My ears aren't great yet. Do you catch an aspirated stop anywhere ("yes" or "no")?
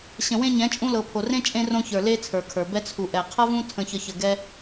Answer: yes